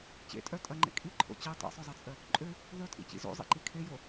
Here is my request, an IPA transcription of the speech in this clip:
t͡ɕḛtʼœ tʼɐŋ͡ǃḛ kʼiǃʰo̰ t͡ɕe tˤḛsˤœzˤet͡sʼœ | ǃʼø | ðˤytʼḭt͡ɕḭ zo̰zˤḭǃi kʰejo

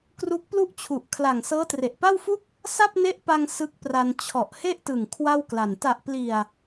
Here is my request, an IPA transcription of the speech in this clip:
kru˦˥k̚plu˥˩ʔt͡ɕʰu˨˩ʔ kʰla˨˩ŋ sɤː˦˥tre˨˩ʔpa˥˩wfu˥˩k̚ | sa˥˩p̚ne˦˥ʔpa˧ŋ sɯ˦˥k̚pra˧n t͡ɕʰɔ˨˩ʔhe˥˩ʔtɯ˨˩ŋ kʰwa˥˩wkla˨˩n ta˨˩ʔpli˨˩a̯

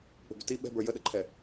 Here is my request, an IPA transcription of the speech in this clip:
k͡pə̤bʏti ɓɛ̤bə˞ jəɗəǃʰɛ

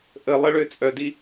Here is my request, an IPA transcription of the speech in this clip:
ʔəlˠəɭø t͡sʼœdi

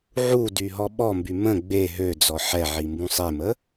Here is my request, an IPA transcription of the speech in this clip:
ʕu dyɦɔɓɔmby mə̃ ɡ͡be ɦød͡zɔ ħɛʕi mbũsˤemə

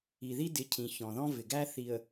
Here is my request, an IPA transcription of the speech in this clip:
i˨ði˦dɪ˨˦cʰĩ˨ çɔ̃˨ðɔ̃˦vɪ˨ɡæ˦ θi˨ə̯

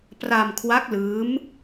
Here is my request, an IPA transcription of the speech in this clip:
pra˧mkʰwa˦˥k̚lɯː˦˥m

